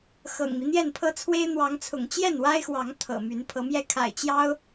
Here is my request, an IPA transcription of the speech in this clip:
x ɤ̰˨˩ ŋ m i˦ n̪ j ɛ˥˨ n pʰ ɤ˦ t͡sʰ w e˦ ɪ̯ n̪ w ɑ˨˦ ŋ t͡sʰ ʊ̰˨˩ ŋ t͡ɕ j ɛ˥˨ n w a˦ ɪ̯ x w ɑ˨˦ ŋ t̪ʰ ɤ̰˨˩ m y˨˦ n pʰ ɤ˨˦ m j ɛ˥˨ kʰ a̰˨˩ ɪ̯ t͡ɕ j ɑ˦ ʊ̯

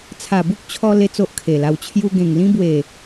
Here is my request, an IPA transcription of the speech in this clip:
t͡sʰ a˨˩ b u˦ k̚ t͡ɕʰ ɔ˧ l e˦ t͡s o˦ ʔ kʰ e˨˩ l a˧ w t͡ɕʰ j u˧ ɡ ẽ˨˩ ŋ l ĩ˦ b w e˨˩

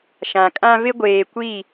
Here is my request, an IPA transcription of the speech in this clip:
ʃ ã˨ kʼ ã˦ v ɪ˦ ɡʷ eː˨ kʷ i˦˨

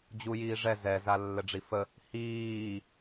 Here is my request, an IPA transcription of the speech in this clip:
d͡ʑ u j iː ʐ ɛ z ɛ z a lː ɘ ɖ͡ʐ i f ə | h iː

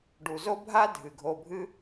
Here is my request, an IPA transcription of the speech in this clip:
ɖ u˨ z o˦ bʱ a˦ dʱ ɨ˨ ɡʱ o˧ bʱ ɨ˦

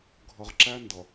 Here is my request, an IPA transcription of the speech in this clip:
ɡʱ ʌ˨ ʁ ǁ æ˦ n d ʌ˨

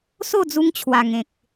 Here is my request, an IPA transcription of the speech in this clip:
s o˥˧ d͡z u˧ ŋ t͡ɕʰ w a˨˩ ŋ ẽ˨ k̚

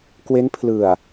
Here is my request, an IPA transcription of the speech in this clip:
k w e˦˥ n pʰ l ɯ˨˩ a̯

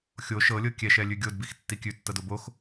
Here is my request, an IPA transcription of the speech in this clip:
xʲ o ʃ ɤ lʲ ɤ kʲ ɛ ʃ ɛ lʲ ʉ ɡʲ o d b i x tː i kʲ ʉ tː ɤ d o b o x

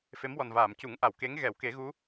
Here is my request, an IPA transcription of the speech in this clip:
f e˧˥ m w ɔ˨˩ n v aː˨˩˨ m c u˨˩˦ ŋ ʔ a˨˩˨ w k e˧˥ ŋ ɣ ɛ˨˩˦ w k e˨˩˦ ɣ u˧˥

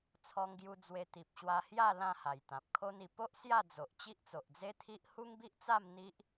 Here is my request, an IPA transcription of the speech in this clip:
t͡sʰ ɔ˧ ŋ ɡ j u˧ d͡z w e˧ t̪ i˨ p̚ ɕ w a˧ h j a˥˧ l ã˥˧ h a˨˩ j t̪ ã˨ p̚ kʰ o˧ n i˨˩ p o˦ ʔ s j a˥˧ d͡z o˨ ʔ t͡ɕ i˦ ʔ t͡s o˨ ʔ d͡z e˦ t̪ʰ i˦ ʔ h u˦ ŋ b i˦ ʔ t͡s a˥˧ m n̪ i˦ ʔ

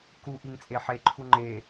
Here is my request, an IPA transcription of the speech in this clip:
k u ʔ i ŋ t͡sʼ e ħ e ǃʰ u ŋ͡ǃ e

